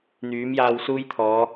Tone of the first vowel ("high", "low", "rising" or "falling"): rising